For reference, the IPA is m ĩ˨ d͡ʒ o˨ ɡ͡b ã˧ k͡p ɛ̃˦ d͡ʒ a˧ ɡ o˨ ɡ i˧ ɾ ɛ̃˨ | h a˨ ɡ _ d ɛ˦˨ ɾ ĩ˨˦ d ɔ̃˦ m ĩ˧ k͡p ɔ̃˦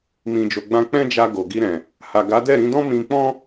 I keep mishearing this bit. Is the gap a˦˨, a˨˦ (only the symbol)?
a˨˦